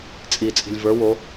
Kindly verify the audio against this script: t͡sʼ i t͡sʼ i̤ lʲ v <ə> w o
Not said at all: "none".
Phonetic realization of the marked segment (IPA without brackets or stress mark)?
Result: ə˞